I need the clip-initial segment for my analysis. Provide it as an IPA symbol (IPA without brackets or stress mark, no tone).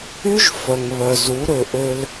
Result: y